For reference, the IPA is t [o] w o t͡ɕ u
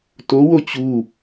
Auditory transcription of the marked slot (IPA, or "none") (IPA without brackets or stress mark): o